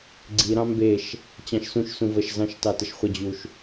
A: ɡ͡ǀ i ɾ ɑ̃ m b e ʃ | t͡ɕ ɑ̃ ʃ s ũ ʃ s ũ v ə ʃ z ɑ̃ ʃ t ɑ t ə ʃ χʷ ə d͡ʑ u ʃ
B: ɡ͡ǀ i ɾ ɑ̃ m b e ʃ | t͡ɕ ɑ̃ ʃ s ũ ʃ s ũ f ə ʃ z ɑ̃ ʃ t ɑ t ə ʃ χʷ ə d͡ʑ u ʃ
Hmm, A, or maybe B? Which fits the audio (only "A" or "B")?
A